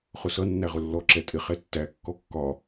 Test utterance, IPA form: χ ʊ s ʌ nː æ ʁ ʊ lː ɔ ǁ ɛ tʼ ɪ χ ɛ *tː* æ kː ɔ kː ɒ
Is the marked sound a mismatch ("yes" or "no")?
no